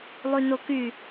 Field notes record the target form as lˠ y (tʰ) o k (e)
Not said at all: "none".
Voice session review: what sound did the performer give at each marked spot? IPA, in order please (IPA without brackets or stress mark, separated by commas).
n, y